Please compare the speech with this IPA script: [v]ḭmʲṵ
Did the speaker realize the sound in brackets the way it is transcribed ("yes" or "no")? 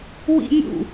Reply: no